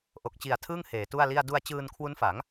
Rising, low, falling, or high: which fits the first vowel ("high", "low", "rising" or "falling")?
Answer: low